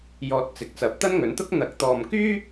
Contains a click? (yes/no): no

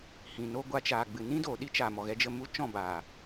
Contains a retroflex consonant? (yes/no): no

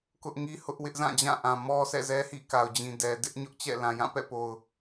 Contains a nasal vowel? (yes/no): yes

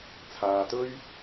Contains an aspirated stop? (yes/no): yes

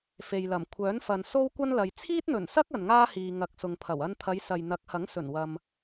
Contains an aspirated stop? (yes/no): yes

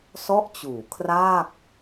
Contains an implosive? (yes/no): no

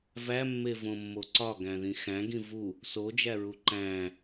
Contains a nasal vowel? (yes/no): yes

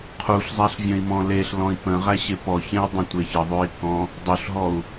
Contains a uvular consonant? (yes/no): yes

